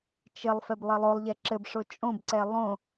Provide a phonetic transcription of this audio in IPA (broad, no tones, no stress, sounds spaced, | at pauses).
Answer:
t͡ʃ ɘ lˠ f ɛ b lˠ ɘ lˠ o lˠ ʎ ɛ ǁ ɘ b ʂ o t͡ʃʼ õ b ǀ ɛ lˠ õ